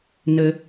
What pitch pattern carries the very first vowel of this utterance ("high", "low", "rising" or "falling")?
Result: low